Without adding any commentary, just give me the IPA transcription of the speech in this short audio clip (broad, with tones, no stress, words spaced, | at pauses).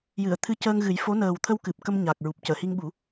jɨ˨˩˨ə̯ t̪ʰɨ˧cəː˧ŋɣɨ˨˩˦jfo˧˥ nəː˨˩wt̪ʰə˧wkɨ˨˩p̚ kə˧mɲa˨˩k̚ɹu˨˩p̚ cəː˨˩˨hi˧ŋɓu˨˩˦